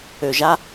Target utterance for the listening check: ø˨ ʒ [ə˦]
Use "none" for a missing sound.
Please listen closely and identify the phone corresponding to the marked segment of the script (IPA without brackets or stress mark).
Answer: a˦